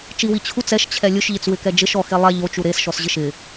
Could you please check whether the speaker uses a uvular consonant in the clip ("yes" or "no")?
no